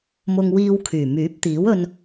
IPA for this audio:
mʊ˧ŋwiː˧w kʰyː˨˩myː˨˥p̚t̪iː˨˥w ɵ˧n

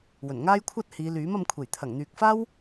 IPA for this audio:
wɵ˨˩nŋaː˥jkʷʰɐ˥t̚ hiː˨˧lyː˨˥m ɐ˧mkʷʰe˨˩j t̪ʰɐ˨˩ŋn̪yː˨k̚faː˥w

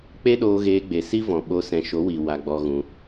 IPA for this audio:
k͡pe˦ɗoː˧ ɣeː˧ɡ͡be˨ si˦vɔ̃˨ɓo˧ sɛ̃˨ʃo˨˦wi˨ wa˧ɡ͡bɔ˧ ɣũ˧

